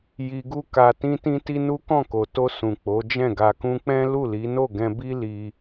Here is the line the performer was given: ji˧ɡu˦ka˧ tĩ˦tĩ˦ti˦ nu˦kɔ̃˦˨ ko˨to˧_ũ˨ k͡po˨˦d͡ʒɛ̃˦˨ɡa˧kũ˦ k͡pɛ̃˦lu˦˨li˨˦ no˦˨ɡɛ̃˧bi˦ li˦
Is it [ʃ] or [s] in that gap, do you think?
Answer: s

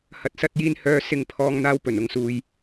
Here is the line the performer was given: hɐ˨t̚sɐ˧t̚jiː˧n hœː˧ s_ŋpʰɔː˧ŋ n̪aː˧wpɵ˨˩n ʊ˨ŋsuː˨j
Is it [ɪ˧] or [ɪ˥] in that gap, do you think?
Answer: ɪ˧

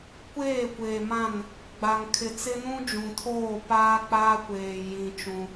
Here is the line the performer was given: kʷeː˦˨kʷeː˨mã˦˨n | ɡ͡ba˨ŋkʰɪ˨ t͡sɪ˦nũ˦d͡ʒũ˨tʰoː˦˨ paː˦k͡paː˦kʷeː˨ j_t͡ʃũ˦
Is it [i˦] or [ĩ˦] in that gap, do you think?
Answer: ĩ˦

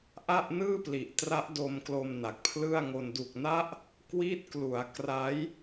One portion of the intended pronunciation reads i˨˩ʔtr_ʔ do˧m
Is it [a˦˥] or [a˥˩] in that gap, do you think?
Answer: a˦˥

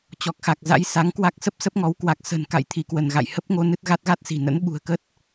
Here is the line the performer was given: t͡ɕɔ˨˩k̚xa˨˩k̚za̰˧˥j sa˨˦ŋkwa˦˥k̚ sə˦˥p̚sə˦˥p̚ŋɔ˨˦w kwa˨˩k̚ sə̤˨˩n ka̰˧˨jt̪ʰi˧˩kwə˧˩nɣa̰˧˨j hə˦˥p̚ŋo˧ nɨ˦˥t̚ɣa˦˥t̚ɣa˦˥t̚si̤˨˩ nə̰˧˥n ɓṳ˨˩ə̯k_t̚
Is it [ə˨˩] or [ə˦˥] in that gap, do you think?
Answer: ə˦˥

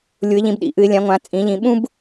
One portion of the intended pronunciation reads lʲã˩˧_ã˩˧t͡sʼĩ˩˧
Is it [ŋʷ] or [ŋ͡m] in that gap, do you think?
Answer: ŋʷ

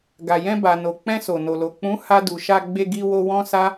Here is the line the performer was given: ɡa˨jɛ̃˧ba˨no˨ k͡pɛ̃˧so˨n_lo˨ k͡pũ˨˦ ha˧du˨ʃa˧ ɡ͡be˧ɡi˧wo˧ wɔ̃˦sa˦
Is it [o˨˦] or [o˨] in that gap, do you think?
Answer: o˨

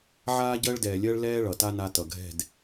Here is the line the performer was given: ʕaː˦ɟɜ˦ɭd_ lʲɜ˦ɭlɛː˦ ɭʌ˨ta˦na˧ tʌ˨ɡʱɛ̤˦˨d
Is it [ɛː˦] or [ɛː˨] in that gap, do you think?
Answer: ɛː˨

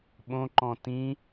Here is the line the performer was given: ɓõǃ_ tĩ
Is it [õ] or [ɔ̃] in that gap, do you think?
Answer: ɔ̃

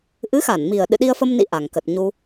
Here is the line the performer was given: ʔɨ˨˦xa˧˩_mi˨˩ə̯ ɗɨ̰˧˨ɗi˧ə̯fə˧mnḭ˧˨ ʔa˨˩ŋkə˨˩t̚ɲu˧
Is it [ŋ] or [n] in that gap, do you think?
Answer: n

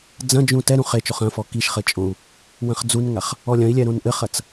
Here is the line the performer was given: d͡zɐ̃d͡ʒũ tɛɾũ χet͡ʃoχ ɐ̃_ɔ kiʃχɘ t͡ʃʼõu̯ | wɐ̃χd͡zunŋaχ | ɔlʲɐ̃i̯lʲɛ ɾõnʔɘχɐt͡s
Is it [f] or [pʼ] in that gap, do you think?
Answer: f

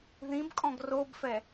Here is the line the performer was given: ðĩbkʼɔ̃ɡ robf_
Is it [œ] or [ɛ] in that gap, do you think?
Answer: ɛ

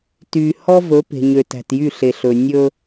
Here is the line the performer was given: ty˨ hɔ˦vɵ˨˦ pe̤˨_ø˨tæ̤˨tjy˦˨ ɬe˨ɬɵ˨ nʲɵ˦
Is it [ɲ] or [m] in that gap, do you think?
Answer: ɲ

